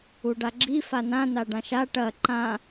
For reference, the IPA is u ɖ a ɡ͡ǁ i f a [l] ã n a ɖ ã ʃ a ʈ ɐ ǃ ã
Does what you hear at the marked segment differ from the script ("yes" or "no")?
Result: yes